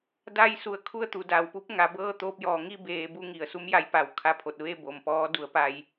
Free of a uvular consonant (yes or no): yes